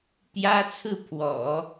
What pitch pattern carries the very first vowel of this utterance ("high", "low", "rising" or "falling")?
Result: high